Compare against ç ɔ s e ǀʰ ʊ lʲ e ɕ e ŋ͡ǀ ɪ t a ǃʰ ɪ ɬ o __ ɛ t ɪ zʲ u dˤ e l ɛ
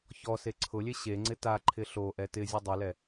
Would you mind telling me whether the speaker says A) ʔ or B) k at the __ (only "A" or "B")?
A